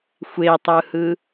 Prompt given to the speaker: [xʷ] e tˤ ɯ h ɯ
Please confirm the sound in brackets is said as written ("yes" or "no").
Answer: yes